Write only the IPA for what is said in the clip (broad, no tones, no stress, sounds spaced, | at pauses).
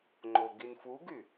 ŋ͡ǃ o ɡ i n f u ɡ y